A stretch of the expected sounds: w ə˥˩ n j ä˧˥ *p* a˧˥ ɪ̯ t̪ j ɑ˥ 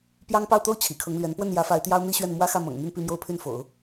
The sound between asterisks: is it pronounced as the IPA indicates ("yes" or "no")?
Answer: no